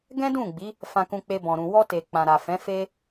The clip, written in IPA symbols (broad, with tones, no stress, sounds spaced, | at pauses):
ɡ ɛ̃˦ d ũ˦˨ ɡ͡b i˨˦ | f ã˧ k ũ˧ k͡p e˧ b ɔ̃˨ ɾ ũ˨ w ɔ˧ t e˨ k͡p ã˨ ɾ a˨ f ɛ̃˨˦ f e˦